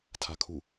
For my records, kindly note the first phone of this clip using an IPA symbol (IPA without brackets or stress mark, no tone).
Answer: tʰ